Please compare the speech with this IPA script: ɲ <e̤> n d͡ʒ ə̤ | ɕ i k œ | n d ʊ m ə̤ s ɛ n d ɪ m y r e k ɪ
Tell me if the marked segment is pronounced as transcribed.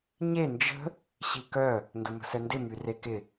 no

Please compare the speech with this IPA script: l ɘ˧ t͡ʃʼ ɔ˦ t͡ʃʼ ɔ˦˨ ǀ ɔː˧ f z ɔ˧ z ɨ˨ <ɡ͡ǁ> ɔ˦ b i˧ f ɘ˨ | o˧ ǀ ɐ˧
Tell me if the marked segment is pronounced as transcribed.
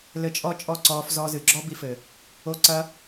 yes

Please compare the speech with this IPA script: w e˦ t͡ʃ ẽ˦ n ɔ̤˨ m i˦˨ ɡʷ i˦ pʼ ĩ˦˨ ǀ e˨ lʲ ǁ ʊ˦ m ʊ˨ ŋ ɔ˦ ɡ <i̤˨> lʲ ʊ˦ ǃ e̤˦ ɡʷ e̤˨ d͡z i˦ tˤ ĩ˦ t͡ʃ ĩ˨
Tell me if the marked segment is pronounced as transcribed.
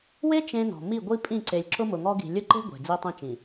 yes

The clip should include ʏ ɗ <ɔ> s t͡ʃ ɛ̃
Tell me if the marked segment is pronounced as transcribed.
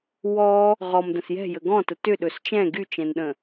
no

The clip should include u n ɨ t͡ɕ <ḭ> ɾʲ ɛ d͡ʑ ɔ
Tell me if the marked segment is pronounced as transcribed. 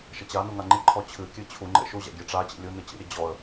yes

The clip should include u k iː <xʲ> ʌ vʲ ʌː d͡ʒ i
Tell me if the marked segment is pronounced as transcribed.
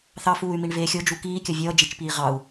no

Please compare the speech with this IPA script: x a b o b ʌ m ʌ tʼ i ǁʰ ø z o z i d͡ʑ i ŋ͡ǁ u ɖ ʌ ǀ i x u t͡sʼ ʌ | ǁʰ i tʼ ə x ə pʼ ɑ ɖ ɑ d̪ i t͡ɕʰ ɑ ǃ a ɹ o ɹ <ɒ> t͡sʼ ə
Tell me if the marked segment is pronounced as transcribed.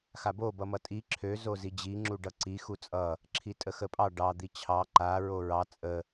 no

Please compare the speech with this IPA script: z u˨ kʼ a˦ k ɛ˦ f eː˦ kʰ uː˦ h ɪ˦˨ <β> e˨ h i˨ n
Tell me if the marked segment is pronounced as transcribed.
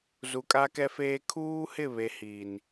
yes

